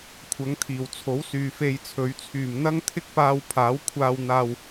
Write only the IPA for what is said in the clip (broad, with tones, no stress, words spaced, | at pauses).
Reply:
kʷʰɐ˨˥ŋt̪ʰiː˨˩wt͡sʰo˨˥wsyː˨ fe˧jt͡sʰɵ˨˥ɥ t͡sʰyː˨˩mn̪ɐ˥ŋt̪ʰɪ˥k̚paː˧w pʰaː˨˥wkʷʰaː˧w n̪aː˧w